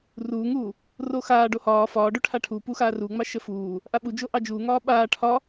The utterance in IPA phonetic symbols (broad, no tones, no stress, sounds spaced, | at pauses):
r uː ŋ uː | r o x aː ɖ o h ɒː f ɒː ɖ o ʈʰ a ʈʰ u p u x aː r u ŋ͡m ɑ ʃ ə f uː | ʔ a ɓ u d͡ʒ o ʔ ɑ d͡ʒ uː ŋ ɒː ɓ aː ʈʰ ɒ